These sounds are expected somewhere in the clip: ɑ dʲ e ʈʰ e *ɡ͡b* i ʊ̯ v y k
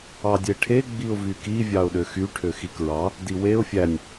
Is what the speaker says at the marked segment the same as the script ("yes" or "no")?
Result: yes